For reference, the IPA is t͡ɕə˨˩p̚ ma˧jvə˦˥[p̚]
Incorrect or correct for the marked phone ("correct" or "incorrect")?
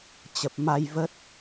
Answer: incorrect